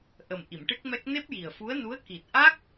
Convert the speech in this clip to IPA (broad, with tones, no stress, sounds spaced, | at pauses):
ʔ ə˨˩ m ʔ i˨˩˨ m ʈ ɨ˦˥ k̚ m ɛ˦˥ k̚ n e˦˥ p̚ j i˨˩ ə̯ f u˧˥ ə̯ n u˧˥ ə̯ k i˨˩ t̚ ʔ a˦˥ k̚